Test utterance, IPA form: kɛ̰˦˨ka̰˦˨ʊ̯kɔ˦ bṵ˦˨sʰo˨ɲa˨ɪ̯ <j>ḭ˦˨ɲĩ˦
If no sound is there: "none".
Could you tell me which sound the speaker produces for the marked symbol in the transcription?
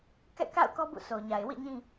w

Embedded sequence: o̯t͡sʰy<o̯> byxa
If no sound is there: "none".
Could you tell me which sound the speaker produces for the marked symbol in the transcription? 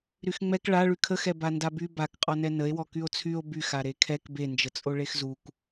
o̯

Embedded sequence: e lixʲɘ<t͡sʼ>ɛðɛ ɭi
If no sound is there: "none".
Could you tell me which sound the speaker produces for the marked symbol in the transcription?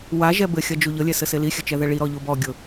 t͡ʃ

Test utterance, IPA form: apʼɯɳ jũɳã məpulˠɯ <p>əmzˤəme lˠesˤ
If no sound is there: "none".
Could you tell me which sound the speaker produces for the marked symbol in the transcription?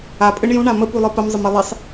p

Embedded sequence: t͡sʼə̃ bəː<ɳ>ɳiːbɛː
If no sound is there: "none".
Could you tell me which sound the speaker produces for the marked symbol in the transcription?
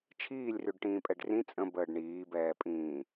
ɖ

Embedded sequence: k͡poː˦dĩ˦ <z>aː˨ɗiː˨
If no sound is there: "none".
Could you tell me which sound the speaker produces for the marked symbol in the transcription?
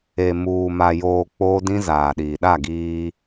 z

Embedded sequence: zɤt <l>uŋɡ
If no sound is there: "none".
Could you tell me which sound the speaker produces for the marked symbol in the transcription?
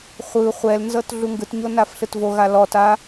ɮ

